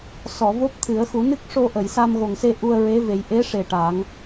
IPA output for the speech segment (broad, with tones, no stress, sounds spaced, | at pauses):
s ɔ˨˩˨ v o˦˥ p̚ t̪ʰ ɨ˨˩˦ ə̯ x u˨˩˦ n ɨ˦˥ k̚ ʂ o˧ ʔ ə˨˩˨ j s a˧ m ɣ o˨˩ ŋ s e˧ ʔ u˧ ə̯ ɹ e˧˥ v e˨˩˦ j ʔ e˧˥ ʂ e˨˩ ʈ a˨˩˦ ŋ